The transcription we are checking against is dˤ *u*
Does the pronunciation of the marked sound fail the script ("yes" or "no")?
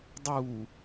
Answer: yes